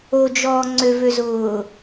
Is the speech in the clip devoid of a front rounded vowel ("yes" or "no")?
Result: no